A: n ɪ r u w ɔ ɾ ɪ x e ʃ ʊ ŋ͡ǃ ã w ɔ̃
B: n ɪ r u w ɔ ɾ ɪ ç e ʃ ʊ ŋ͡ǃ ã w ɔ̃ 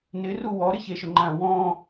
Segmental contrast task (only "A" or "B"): B